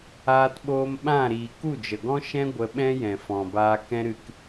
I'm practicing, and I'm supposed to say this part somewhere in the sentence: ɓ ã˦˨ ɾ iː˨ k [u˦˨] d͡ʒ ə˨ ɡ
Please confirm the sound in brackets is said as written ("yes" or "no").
yes